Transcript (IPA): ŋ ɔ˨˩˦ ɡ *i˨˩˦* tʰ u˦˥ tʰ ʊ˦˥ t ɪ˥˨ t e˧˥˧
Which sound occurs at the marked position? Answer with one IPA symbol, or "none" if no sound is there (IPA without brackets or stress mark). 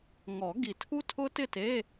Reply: i˨˩˦